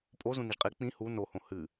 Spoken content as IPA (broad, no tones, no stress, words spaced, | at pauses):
pʼo zũniʒqʼi k͡pĩ hu nohõ hɨ